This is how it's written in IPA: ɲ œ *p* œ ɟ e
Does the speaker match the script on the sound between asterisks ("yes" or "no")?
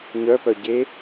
yes